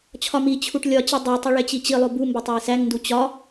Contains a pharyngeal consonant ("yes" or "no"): no